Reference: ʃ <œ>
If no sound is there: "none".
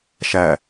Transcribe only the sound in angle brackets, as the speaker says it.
æ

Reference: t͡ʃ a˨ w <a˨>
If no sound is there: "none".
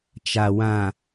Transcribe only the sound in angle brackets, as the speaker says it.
ã˨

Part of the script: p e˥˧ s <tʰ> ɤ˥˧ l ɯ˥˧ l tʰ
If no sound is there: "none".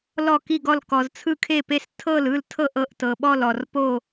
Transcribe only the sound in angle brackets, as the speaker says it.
tʰ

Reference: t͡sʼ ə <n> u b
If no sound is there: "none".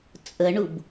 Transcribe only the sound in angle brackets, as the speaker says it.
ɳ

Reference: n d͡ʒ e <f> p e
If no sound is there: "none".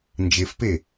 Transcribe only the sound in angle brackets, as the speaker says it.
f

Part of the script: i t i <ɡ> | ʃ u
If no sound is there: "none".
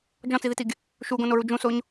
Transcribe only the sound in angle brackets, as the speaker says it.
ɡ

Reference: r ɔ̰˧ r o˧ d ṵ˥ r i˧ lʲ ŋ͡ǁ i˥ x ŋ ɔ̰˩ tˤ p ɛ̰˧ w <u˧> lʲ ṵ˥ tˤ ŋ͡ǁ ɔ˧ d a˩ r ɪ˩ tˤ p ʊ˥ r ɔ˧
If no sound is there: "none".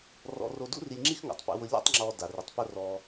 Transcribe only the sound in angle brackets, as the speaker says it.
ʊ˧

